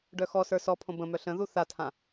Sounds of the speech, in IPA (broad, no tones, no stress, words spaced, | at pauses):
ɖœxɔsə˞ sɔpʰõ bə̃ mœɬə̃ðu θatʰã